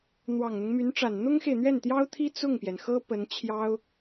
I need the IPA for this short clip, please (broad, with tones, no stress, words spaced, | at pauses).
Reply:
n̪wɑ˨˩ŋn̪ʊ˦ŋmy˧˥nʈ͡ʂa˨˩n n̪ʊ˥ŋxe˨ɪ̯n̪ɥɛ˥˩nt̪jɑ˥ʊ̯ t̪ʰi˥ t͡sʊ˥˩ŋpjɛ˩nxɤ˥ pə˧˥nt͡ɕʰjɑ˥ʊ̯